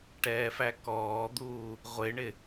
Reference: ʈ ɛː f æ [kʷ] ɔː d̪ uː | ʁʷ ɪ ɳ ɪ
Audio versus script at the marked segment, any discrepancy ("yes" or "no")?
yes